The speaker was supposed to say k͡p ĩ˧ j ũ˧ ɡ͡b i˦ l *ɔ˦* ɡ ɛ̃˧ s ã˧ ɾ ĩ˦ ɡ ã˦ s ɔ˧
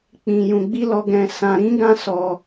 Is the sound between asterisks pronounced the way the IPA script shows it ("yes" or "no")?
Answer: no